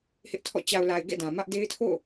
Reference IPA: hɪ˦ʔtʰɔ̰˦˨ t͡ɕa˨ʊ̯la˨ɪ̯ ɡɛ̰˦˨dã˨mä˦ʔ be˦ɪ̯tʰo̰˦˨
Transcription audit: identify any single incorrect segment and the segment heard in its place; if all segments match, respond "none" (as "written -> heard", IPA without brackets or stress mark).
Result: b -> d